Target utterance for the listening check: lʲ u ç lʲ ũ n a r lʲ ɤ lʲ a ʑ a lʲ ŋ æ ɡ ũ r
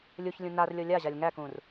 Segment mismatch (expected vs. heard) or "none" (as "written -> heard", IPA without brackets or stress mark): ɡ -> k